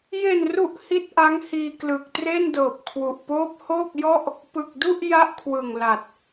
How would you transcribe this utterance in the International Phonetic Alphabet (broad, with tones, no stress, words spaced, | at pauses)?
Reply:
je˨˩nru˨˩ʔ hi˥˩t̚ʔa˦˥ŋhiː˧ klɯ˨˩k̚tre˥˩n dɤː˨˩p̚kʰwu˨˩ʔ poː˦˥p̚hoː˥˩k̚jɔ˥˩ʔ | pɯ˨˩k̚du˥˩ʔ ja˥˩ʔkʰwɯ˨˩ŋla˨˩t̚